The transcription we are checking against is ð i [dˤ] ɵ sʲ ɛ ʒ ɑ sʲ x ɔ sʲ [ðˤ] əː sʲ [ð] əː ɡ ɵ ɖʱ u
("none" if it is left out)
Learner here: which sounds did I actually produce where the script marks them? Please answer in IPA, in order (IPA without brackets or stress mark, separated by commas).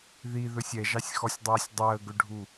ð, dˤ, dˤ